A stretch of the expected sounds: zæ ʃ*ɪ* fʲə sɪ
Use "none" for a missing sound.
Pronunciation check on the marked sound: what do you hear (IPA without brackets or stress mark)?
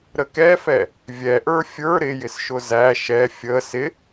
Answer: ɛ